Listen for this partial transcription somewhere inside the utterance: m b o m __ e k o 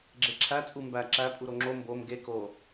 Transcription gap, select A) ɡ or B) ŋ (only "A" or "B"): A